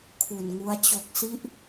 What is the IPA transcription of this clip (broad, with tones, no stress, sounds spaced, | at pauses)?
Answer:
kʰ u˨˩ n ŋ u˦˥ a̯ t͡ɕ o˨˩ k̚ s i˦˥ ʔ